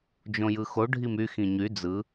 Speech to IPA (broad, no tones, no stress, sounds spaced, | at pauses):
d͡ʒ õ j ɯ x o ɖʱ i m y x ĩ ɲ y d͡z ɯ